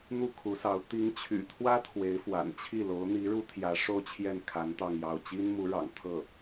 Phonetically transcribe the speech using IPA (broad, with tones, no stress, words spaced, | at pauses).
n̪u˥˩kʰu˧˥sɑ˧˥ʊ̯ t̪i˧˥ŋt͡ɕʰy̰˨˩t̪ʰwä˥ t̪ʰwe˧˥ɪ̯fwa̰˨˩nt͡ɕʰi˥˩ lo˧˥ʊ̯n̪i˧˥ɻu˥t̪ʰjä˧˥ ʂo˥˧ʊ̯t͡ɕʰjɛ˥˩nkʰa˧˥n t̪ɑ˥˧ŋjɑ˥˩ʊ̯ t͡ɕi˥nmu˧˥ ɻɑ̰˨˩ŋ t̪ʰɤ˥˩